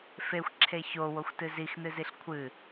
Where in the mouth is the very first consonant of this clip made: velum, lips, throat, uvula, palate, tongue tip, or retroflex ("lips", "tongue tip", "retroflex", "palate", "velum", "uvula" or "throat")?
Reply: lips